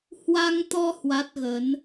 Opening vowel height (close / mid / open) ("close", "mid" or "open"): open